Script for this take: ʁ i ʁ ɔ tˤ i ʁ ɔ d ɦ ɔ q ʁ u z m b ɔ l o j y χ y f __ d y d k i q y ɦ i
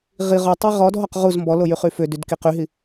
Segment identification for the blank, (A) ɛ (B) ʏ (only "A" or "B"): B